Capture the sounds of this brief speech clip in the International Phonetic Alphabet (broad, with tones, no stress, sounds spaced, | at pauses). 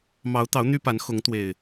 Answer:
m ɑ˨˦ ʊ̯ t̪ ɑ˨˦ ʊ̯ n̪ y˦ p a˨˦ n x ʊ˨˦ ŋ t̪ w e˨˩ ɪ̯